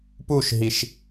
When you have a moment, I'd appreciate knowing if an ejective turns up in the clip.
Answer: no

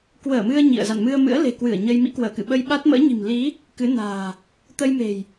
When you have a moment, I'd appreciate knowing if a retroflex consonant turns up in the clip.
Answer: no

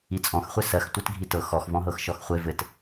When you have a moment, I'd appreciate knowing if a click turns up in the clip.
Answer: no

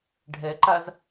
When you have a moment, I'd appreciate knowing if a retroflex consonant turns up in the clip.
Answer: yes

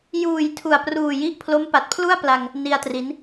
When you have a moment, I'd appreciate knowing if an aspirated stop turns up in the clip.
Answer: yes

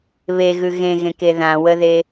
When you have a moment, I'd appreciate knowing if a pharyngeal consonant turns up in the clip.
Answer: no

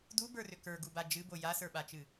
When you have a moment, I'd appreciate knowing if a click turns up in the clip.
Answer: no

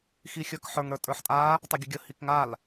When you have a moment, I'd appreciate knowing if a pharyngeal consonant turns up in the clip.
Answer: yes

